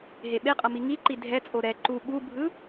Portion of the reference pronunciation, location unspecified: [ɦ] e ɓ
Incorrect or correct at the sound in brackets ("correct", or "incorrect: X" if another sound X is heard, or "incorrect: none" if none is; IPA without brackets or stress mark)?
correct